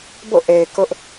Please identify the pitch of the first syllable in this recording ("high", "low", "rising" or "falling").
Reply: falling